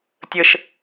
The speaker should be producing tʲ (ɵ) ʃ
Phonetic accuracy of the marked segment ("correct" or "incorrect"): incorrect